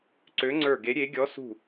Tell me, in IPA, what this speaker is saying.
ǀ ø˧˥ ŋ͡ǀ ə˞˦˨ ɡ e˧˥ ɾʲ e˧˥ ɡʲ ɔ˧˥ s ṳ˦˨

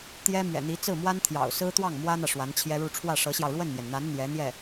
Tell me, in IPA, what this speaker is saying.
t̪ j ɛ˥ m ɥ ɛ̰˨˩ n̪ i˧˥ t͡s ɹ̩˥˩ m w a˥ n t̪ʰ j ɑ̰˨˩ ʊ̯ s ɹ̩˥ t̪ w ɑ˥˩ ŋ m w ä˥ n̪ ä˨ ʂ w a˧˥ n t͡ɕʰ j ɛ˥ ɻ u˥˧ ʈ͡ʂʰ w ä˥˩ ʂ ɤ˧˥ ɕ j ɑ˧ ʊ̯ ɻ w ə˥˩ n m j ɛ˩ n n̪ a˧˥ n n̪ j ɛ˧˥ n̪ j ɛ˥˩

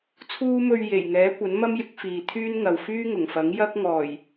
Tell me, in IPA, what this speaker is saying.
t͡sʰ uː˥ m ɵ˧ ɥ j e˨˩ j ŋ ɛː˨˥ kʷ ɐ˨˥ n m ɐ˥ m j ɪ˨˥ k̚ f iː˨ t̪ʰ yː˥ n ŋ ɐ˨ w f yː˥ ŋ ʊ˨˩ ŋ f ɐ˨˥ ŋ j ɐ˥ k̚ ŋ ɔː˨˩ j

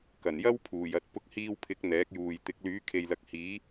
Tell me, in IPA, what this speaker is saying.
k ɐ˨˩ n j ɐ˥ w pʰ uː˨˩ j ɐ˧ t̚ p ʊ˧ k̚ h iː˧ w pʰ ɪ˨˥ k̚ n̪ ɛː˨˥ k̚ j uː˨ j t̪ ɪ˨˥ k̚ l yː˨˥ kʰ e˨ j l ɐ˨˥ k̚ h iː˨˥

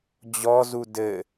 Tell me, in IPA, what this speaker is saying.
d͡ʑ ɔ z u d ɘ

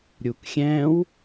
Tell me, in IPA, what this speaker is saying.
ɾʲ u k xʲ ɛ̃ w

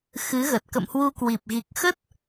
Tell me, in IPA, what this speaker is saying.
x ɨ˨˦ ɣ ə˨˩ t̚ k ə̰˧˨ m h w u˧ k w i˨˩ p̚ ɣ i˨˩ k̚ x ə˦˥ t̚

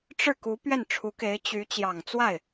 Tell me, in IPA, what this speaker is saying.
ʈ͡ʂ ɻ̩˥˩ k u˧˥ p ɥ ɛ˥˩ n ʈ͡ʂʰ u˧˥ k e˧˥ ɪ̯ t͡ɕ y˧˥ t͡ɕ j ɑ˨˩ ŋ t͡s w a˥˩ ɪ̯

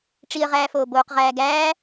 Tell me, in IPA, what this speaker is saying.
ʈ͡ʂ i ə̯ ʁ æː f oː b oː q ʁ æː ɡ æː

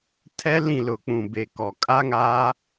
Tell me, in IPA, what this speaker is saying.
tʰ ɛ˦ l ĩ˦˨ l ʊ˨ k͡p ũ˨ b e˨ k ɔ˨ kʼ a˦ ŋ aː˦

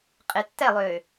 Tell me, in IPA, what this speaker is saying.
qʼ e tː ɛ lˠ ʏː

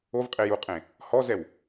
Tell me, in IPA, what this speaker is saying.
o v qʼ e j u qʼ ẽ | h ɔ z ɛ w

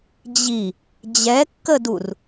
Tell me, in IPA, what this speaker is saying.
d͡ʑ i | d͡ʑ ɛ kː ə d u r

